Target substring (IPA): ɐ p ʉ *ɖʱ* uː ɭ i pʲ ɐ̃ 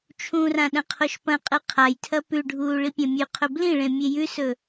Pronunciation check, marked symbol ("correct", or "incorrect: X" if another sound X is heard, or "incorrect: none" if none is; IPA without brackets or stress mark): correct